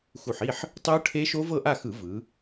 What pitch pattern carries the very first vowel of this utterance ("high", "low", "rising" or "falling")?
low